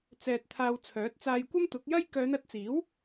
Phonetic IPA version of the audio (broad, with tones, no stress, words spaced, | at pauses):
t͡sɛː˧t̚t̪ʰaː˧wt͡sʰœː˨˥t̚ t͡saː˧jkʷɐ˥mt̪ʊ˨˥k̚jɐ˥j kœː˨˧nɐ˨˥t̚t͡siː˨˥w